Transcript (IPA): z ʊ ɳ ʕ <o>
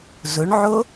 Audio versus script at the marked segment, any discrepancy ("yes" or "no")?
no